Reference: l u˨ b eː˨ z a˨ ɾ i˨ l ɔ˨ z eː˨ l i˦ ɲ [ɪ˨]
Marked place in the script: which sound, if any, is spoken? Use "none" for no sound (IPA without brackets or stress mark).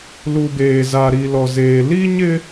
ɪ˦